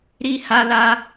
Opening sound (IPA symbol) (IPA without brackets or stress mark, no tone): ɾ